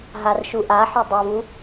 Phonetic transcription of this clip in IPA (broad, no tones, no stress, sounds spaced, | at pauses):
ɦ a r ʃ u ʔ a ħ ø dˤ ɛ v u